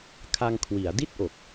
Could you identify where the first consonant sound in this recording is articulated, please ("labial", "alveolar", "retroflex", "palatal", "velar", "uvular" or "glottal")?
velar